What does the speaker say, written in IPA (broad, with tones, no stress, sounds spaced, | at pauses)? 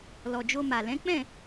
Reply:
l ɔ˨ d͡ʒ o˧ m a˨ l ɛ̃˨˦ k͡p ɛ̃˦˨